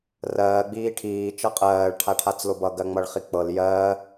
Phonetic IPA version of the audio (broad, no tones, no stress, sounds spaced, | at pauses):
r ɜː ɡ͡b iː ʈʰ iː t͡ʃ ʌ qʼ ɜː ɭ ʈʰ a ʈʰ a t͡s l o b ʌ ɡ ɜ ŋ͡m ʌ ɭ χ i k͡p ɤ l j ɜ